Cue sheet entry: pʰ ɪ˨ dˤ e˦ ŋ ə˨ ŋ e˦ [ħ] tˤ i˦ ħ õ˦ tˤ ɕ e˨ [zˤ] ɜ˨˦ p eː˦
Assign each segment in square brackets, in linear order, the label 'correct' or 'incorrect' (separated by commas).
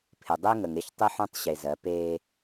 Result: incorrect, incorrect